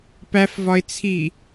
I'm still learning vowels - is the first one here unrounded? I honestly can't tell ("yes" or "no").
yes